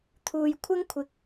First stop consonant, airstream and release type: aspirated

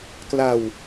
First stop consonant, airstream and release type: plain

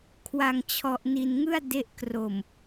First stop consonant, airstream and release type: aspirated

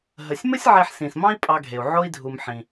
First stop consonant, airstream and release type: ejective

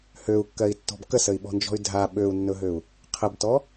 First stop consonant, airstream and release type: plain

